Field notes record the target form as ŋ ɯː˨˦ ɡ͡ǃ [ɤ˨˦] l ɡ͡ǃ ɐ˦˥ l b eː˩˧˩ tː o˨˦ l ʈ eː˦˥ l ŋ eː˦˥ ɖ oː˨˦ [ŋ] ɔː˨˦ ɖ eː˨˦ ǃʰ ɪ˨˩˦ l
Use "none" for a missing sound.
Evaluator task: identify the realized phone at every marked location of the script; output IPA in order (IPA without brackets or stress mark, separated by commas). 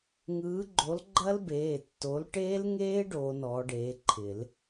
o˨˦, n